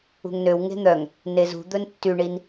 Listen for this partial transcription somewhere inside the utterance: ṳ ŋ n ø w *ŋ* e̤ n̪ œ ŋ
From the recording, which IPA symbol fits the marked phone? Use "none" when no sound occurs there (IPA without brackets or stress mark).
ŋ